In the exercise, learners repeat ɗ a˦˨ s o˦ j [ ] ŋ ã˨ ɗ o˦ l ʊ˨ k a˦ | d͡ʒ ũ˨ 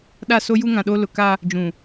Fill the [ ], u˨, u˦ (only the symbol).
u˦